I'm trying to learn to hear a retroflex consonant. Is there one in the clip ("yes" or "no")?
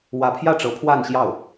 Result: yes